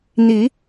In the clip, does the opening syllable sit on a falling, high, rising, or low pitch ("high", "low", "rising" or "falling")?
rising